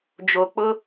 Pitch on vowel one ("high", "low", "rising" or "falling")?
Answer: low